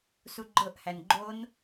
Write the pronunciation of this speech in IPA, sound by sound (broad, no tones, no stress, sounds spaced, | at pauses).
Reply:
s u ɡ͡ǃ ɤ ʔ h æ n ɡ͡ǃ o n